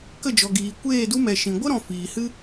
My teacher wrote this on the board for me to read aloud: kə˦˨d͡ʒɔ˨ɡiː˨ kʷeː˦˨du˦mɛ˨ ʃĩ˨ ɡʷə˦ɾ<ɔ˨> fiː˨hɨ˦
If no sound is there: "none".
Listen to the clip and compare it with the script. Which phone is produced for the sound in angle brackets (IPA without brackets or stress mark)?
ɔ̃˨